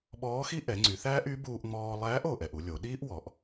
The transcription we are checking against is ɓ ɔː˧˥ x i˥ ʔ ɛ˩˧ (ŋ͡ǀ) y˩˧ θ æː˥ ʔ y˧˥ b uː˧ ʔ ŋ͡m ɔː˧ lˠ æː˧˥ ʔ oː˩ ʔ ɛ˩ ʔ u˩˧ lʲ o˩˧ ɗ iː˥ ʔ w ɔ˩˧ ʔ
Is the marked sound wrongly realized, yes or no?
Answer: no